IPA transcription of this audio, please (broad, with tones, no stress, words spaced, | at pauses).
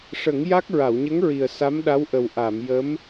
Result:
ʂə˨˩˦ŋja˦˥k̚ ɹa˨˩˨wɲə˧˥ŋɹi˨˩ə̯ sa˧˥mɗa˧˥wʔə˨˩w ʔa˨˩˨mjə˧˥m